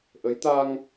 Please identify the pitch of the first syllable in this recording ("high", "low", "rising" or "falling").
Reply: rising